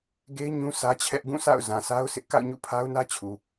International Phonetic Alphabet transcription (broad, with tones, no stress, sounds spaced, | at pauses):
ɡ e˦ ɪ̯ ɲ ũ˦ sʰ ä˦ t͡ɕʰ ɛ˦ ʔ ɡ ũ˦˨ s a̰˦˨ ʊ̯ z ã˨ s a˦ ʊ̯ sʰ ɪ˦ ʔ k a̰˦˨ ʊ̯ ɲ ṵ˦˨ pʰ a˦ ʊ̯ n ä˦ t͡ɕʰ u˨